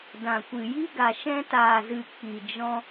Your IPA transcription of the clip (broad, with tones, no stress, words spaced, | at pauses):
dã˨kʷɨ˨ ji˦ɡa˨ ʃɛ̃˧taː˨zɨ˨ k͡pi˨d͡ʒɔ̃˧